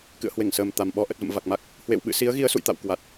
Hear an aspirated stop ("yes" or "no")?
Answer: no